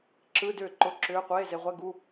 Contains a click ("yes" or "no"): yes